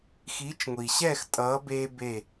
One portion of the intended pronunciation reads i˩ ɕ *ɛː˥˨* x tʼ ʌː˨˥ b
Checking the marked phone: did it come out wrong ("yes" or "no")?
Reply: no